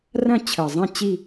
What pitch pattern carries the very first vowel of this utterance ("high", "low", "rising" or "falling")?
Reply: falling